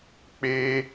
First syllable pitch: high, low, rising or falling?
high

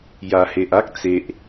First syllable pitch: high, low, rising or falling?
low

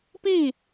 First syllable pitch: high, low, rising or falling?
falling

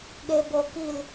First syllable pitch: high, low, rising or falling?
low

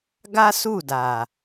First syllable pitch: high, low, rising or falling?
high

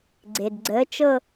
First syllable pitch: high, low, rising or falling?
low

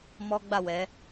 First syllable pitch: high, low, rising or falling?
high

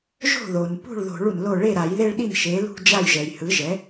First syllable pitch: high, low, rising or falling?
falling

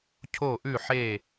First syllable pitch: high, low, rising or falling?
falling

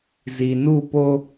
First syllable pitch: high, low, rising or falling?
low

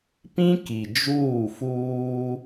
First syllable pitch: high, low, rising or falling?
high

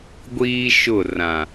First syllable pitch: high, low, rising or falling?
high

